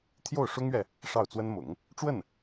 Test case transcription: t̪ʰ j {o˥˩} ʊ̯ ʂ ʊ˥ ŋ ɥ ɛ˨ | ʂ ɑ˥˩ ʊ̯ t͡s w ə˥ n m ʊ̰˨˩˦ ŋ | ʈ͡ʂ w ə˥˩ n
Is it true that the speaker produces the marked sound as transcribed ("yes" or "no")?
yes